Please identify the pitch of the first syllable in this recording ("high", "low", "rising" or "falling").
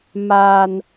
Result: high